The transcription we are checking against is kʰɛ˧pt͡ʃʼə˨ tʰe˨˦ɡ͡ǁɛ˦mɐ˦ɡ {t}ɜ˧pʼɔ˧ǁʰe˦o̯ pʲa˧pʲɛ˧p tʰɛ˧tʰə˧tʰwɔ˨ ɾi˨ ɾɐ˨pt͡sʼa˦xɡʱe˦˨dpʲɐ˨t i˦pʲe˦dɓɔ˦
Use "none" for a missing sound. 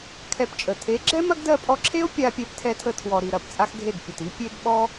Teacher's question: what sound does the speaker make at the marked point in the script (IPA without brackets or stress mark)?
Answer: d